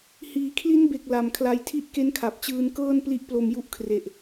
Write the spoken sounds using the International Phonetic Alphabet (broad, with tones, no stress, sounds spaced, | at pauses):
h iː˩˦ kʰ l i˦˥ n b e˨˩ k̚ l a˨˩ m kʰ l a˧ j tʰ i˦˥ ʔ k e˦˥ n kʰ a˨˩ p̚ t͡ɕ ɯː˧ n k ɤː˥˩ n p l i˦˥ ʔ p l o˧ m j u˦˥ ʔ kʰ r e˨˩ ʔ